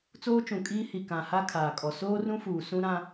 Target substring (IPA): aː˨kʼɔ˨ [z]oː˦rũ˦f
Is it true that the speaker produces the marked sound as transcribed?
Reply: no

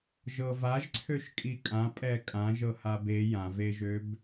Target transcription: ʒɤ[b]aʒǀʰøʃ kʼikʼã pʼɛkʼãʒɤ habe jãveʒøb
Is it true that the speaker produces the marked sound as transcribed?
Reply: no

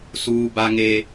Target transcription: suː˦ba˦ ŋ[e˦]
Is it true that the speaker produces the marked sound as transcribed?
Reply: yes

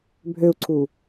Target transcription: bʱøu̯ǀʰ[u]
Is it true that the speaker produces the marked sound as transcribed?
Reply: yes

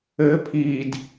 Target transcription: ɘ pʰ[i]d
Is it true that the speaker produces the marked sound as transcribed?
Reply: yes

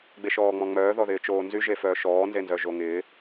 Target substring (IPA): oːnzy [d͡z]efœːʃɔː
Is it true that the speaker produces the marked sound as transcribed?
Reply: no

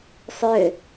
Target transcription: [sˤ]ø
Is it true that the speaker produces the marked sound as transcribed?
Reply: yes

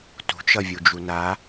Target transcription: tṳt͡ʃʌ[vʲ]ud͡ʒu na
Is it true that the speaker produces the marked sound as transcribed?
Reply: yes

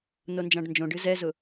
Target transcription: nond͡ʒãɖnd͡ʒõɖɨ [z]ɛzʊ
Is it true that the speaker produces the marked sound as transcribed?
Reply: yes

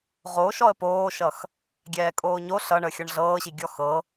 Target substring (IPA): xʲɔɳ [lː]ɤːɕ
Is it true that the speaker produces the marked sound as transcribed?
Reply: no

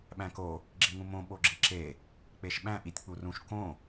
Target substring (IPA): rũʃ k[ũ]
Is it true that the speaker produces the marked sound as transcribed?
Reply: no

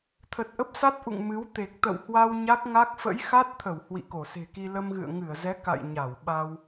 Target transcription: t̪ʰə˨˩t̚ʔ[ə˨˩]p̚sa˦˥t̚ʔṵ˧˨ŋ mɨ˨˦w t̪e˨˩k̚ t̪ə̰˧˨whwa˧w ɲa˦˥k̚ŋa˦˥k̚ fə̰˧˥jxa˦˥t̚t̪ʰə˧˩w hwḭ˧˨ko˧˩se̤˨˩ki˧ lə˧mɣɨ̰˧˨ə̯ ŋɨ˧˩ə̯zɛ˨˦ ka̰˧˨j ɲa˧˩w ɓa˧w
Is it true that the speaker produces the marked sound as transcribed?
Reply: no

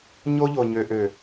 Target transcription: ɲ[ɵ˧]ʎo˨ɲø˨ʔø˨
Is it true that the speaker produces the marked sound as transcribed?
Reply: no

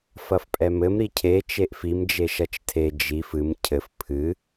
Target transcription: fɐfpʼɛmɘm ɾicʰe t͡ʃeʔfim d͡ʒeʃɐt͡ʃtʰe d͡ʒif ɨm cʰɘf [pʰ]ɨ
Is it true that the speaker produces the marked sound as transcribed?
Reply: yes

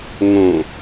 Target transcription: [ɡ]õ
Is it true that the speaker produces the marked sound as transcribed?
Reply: no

